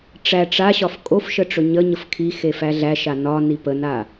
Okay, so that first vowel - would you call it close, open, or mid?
open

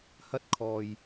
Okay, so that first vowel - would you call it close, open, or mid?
open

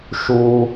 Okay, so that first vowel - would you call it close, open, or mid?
close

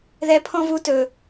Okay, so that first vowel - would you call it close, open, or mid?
mid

